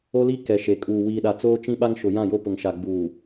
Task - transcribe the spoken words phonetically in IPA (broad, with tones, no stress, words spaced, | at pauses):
o˦li˦ kɛ˨ ʃe˨ kʼuː˨ wiː˨ɗa˨ t͡soː˦t͡ʃĩ˦ɓa˦ŋ ʃʊ˨jã˦˨jo˦ pʊ˨ŋʃa˨ ɡ͡buː˨